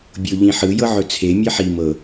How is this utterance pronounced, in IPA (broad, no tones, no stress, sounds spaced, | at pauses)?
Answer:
bʲ o ʎ ĩ ħ ɯ j ɤ ʕ ɵ t͡sʰ e mʲ ɜ ħ i m ɤ